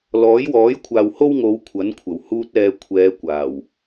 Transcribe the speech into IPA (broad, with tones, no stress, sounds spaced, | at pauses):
l ɔː˨˥ j w ɔː˨˥ j kʷʰ aː˨ w h o˥ w ŋ o˨˧ w kʷʰ ɐ˨˥ n kʷʰ ɐ˨˩ w h uː˧ t̚ ɛː˨ kʷʰ ɛː˨˧ kʷ aː˨˩ w